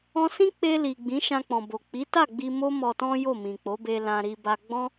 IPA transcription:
ɔ̃˧sĩ˦k͡pe˧li˨ ɡ͡bĩ˨˦ʃã˧k͡pɔ̃˨bo˨ k͡pi˨˦ta˦˨ɡ͡bi˧ mo˦ mɔ˧tɔ̃˦jo˦˨ mĩ˨k͡po˨˦be˧ lã˧ɾi˧ ba˧ɡ͡bɔ̃˦

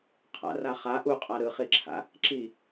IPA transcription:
qʰa̰ra χa ʔuqʼa ɾɯχiǁʰa̰ | ǁi

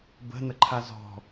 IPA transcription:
bə̤nəǃʰa zɔ̤

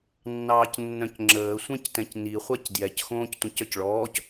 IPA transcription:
nːɑːcnːœ̃cŋ͡ǁəː sʷɛ̃ctɛ̃cni χʷacdjɛc xõːctʷɛ̃cœcɭɔːc

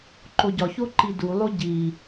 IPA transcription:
ǃoɟɒ çoǃidu lˠoɟi

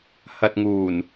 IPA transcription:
hɐ˨t̚ŋuː˨˩n

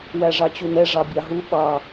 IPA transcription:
wæʐɑt͡ɕunɛ ʐɑbʲɑɦu ɓɑ

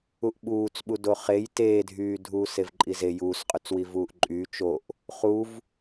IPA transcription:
uʔɓuːt͡sɓu doχej teːdʱyː dʱuːsevǃʼize juːsqʼyt͡swi vuːʔǃʼyː t͡ʃoʔ | χuv

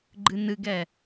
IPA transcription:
ɡ͡ǃɨnɨɡɛ

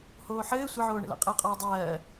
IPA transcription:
hoːħɘː sʷɘʕoːɳə̰la̰ qʼəːqʼɔːdˤɜː

